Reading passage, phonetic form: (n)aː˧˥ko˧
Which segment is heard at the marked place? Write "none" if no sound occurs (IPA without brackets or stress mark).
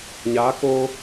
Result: ɲ